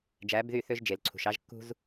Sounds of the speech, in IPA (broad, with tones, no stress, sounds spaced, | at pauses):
d͡ʒ æ˨˦ b ð y˦˨ θ ø˦ ʒ d͡ʒ e˨ l ǀʰ ṳ˨ ʃ ɑ˦ ʒ kː ṳ˦ z